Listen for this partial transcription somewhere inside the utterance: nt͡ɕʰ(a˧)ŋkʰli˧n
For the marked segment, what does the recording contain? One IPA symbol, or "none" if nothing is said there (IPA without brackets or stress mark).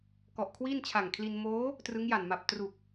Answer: a˨˩